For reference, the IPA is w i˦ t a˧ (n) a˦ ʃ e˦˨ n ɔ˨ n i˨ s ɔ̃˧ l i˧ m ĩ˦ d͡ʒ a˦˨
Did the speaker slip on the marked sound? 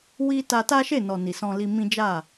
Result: yes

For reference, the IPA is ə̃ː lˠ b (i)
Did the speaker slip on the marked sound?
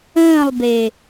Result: yes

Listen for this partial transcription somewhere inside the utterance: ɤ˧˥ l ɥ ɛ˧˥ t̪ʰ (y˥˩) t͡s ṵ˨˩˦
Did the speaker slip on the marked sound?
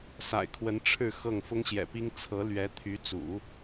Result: yes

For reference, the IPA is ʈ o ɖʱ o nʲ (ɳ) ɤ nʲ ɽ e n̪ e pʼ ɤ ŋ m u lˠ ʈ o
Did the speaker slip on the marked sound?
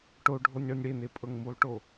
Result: no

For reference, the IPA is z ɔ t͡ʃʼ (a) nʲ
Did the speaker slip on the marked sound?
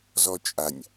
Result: no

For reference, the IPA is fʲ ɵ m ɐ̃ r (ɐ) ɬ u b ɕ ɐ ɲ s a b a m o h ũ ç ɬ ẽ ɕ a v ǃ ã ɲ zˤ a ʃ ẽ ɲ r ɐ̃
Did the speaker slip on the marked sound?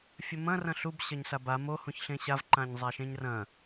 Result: yes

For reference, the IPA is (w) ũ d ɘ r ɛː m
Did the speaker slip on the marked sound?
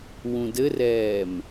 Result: no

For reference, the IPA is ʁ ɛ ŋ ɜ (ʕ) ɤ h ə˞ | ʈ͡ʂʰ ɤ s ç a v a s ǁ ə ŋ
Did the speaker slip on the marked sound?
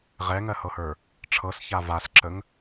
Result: yes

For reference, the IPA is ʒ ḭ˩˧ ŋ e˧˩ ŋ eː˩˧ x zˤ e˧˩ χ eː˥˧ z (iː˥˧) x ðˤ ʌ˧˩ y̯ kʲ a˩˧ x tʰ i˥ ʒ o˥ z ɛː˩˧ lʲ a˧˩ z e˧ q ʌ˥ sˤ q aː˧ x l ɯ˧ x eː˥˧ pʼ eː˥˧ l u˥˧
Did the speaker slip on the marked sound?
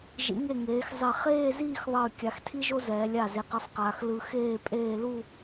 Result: no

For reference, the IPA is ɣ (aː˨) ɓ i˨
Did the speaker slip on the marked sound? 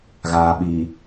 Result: no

